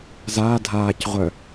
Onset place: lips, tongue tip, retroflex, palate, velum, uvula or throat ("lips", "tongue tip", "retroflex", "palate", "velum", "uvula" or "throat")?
tongue tip